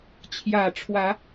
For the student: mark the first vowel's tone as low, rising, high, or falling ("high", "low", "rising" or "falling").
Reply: low